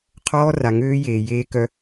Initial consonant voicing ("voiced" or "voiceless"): voiceless